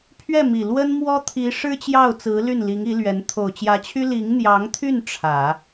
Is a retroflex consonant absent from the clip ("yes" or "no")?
no